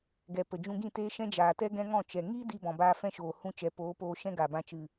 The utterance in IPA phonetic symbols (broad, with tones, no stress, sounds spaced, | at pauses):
ɡ ɛ˨ p ə˨ d͡ʒ ũ˧ ɡ ĩ˦˨ t eː˦ ʃ ɛ̃˦ d͡ʒ aː˨ t ɛ˦ ɡ ɛ̃˦ ŋ ɔ̃˦˨ t͡ʃ ɛ˨ ŋ i˦ d i˦ b ɔ̃˨ b aː˦ f ɛ̃˦ ʃ oː˨ h ũ˦ t͡ʃ ɛ˨˦ p oː˨˦ p oː˧ ʃ ɛ̃˦ ɡ a˨ b ã˧ t͡ʃ ɨ˨